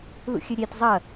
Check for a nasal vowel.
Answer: absent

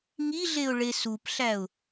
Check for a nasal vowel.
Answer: absent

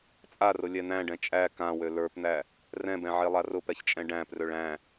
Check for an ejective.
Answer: present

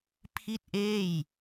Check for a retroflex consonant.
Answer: absent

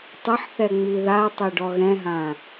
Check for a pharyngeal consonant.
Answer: present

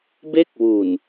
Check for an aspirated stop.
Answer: absent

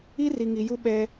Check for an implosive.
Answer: present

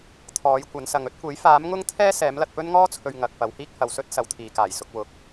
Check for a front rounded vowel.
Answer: absent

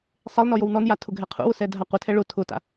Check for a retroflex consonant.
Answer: present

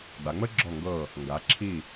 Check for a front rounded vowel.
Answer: absent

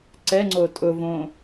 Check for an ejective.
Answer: present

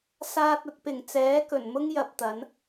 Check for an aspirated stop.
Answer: absent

